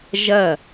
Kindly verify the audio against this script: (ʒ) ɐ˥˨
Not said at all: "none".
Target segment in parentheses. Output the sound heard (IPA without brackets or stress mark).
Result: ʒ